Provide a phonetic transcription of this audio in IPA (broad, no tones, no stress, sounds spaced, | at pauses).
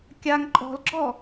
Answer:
kʲ a ŋ ǃʼ ɔ̤ l ɡ͡ǁ ɔ